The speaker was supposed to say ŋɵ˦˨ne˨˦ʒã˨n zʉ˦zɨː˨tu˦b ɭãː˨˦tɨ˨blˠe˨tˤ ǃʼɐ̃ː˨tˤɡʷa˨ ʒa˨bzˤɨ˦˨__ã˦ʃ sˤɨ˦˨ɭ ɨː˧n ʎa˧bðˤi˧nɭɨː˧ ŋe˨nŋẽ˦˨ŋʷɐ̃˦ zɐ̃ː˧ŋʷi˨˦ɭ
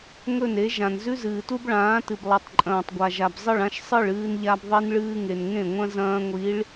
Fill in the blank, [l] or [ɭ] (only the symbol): ɭ